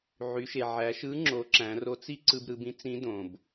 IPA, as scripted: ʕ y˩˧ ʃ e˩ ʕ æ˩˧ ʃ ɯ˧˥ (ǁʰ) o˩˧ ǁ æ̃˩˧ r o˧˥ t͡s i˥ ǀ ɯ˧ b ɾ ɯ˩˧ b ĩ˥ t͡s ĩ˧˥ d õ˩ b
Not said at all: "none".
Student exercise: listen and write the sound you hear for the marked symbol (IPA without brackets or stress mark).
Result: ŋ͡ǁ